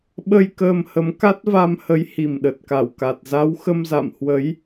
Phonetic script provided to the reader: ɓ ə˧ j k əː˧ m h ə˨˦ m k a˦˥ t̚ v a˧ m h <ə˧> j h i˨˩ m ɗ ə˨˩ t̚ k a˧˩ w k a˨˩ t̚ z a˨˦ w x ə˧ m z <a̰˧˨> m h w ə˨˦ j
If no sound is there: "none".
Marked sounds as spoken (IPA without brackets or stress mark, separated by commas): ə˨˦, a̰˧˨